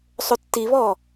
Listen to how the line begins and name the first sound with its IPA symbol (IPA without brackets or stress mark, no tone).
sˤ